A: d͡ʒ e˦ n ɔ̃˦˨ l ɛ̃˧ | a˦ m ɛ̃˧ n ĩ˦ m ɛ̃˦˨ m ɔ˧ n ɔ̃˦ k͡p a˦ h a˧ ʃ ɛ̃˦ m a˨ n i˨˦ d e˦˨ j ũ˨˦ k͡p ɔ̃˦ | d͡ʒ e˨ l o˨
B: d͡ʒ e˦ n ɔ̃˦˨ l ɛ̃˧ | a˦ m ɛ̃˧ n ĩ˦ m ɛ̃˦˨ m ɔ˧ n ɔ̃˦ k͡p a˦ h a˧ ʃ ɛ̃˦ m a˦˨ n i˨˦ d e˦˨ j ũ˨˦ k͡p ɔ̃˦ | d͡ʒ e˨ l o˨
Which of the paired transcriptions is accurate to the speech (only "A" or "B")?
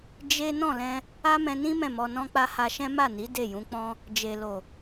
B